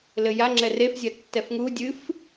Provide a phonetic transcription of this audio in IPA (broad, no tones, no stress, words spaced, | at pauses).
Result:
lɘja ŋ͡ǁɛrefzʲɐ tːɛfŋu dʲɨf